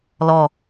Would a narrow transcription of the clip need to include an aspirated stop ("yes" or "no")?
no